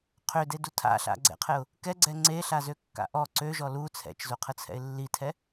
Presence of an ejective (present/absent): absent